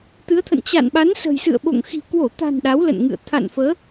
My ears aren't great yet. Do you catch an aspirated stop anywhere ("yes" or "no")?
yes